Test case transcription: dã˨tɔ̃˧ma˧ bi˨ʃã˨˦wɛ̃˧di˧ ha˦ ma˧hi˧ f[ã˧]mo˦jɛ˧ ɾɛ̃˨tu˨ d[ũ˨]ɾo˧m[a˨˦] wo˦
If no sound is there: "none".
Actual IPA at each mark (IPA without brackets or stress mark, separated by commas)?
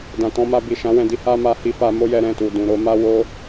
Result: a˧, ũ˨, a˦